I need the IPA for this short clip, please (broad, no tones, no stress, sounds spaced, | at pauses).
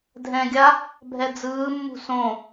dʱ ɛ̃ ɡʲ a | bʱ ɛ d͡z ɯː mː ṳ s õ